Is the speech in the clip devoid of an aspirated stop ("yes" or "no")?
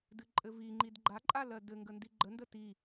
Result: yes